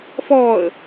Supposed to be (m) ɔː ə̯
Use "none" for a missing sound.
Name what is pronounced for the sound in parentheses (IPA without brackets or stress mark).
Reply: f